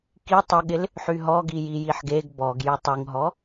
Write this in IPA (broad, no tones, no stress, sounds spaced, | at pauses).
k i tˤ ə ɠ ɪ l | ħ y ɦ ɔ ɡ i j i j i ħ ɡ e ɡ b ɔ ɡ j y tˤ y ŋ ɦ ɔ